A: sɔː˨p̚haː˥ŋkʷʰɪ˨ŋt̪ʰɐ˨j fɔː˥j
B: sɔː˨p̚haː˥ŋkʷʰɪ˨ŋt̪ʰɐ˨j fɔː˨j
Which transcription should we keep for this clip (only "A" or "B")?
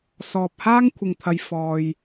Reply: B